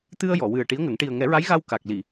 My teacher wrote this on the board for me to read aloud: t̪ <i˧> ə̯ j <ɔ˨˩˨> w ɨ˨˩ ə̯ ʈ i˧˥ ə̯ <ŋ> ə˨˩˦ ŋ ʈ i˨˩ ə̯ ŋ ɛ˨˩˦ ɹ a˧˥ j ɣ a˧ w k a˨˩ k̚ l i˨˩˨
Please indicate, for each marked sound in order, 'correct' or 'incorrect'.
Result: incorrect: ɨ˧, correct, correct

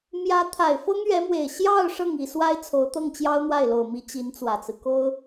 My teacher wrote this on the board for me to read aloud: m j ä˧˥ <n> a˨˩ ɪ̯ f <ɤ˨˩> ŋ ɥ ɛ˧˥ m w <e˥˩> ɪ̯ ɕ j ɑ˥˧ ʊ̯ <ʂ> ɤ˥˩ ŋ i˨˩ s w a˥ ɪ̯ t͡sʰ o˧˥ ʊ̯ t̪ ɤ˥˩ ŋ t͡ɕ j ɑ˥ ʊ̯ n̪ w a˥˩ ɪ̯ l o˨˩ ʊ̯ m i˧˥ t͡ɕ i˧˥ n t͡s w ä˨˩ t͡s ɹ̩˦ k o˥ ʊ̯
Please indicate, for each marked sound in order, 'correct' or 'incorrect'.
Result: incorrect: t̪ʰ, incorrect: ɤ˥, incorrect: e˨˩, correct

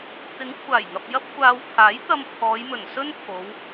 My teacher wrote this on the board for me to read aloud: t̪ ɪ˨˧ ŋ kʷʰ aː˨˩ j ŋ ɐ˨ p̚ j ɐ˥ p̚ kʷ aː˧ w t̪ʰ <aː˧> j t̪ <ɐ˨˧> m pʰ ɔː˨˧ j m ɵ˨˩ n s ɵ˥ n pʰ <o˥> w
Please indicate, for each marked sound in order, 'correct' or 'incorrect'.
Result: incorrect: aː˨˥, incorrect: ɐ˧, incorrect: o˨˧

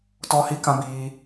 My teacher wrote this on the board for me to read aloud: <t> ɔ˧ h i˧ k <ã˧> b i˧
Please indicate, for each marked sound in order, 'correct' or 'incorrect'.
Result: correct, correct

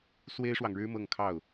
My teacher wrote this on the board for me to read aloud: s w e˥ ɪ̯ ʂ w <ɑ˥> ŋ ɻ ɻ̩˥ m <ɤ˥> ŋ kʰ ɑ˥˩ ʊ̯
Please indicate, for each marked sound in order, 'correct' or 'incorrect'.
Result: incorrect: ɑ˨, incorrect: ɤ˥˧

